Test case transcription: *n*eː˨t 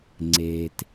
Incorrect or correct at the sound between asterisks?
incorrect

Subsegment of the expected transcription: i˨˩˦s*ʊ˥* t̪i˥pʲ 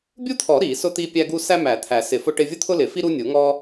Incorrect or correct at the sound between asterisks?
correct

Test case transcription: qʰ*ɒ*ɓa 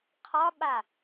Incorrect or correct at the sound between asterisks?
correct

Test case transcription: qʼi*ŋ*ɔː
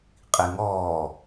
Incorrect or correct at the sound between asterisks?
correct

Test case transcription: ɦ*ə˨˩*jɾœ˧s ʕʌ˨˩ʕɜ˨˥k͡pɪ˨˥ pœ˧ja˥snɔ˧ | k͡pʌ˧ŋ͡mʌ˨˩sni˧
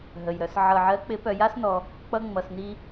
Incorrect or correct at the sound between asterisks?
correct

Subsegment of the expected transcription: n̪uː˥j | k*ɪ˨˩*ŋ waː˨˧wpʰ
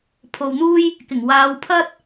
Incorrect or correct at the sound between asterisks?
correct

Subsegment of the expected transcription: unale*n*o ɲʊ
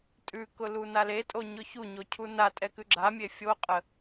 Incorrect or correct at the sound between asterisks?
incorrect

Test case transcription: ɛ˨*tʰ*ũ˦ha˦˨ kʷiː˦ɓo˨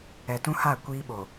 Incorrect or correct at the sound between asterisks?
incorrect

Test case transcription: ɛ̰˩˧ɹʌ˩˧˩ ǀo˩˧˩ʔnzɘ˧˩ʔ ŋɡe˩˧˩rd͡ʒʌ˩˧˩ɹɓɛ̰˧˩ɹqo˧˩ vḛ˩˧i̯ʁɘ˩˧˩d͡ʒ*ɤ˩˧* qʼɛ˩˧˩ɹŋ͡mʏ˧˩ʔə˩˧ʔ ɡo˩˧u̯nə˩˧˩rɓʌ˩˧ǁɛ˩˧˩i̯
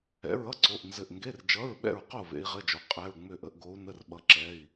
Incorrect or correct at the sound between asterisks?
incorrect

